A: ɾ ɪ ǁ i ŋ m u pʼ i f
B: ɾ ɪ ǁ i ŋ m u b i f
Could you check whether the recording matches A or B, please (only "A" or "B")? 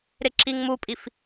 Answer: A